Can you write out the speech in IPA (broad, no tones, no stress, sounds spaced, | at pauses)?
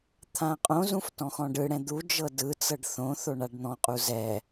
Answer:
t̪ʰ ã qʼ õ z ũ f t ɔ̃ x ɔ̃ ɖ ɯ ɽ ɛ̃ d̪ u d͡ʒ ɤ d ɯ t͡s ɤ ɖ θ õ θ o ɳ a ɖ n̪ ɔ̃ qʼ u z ɛ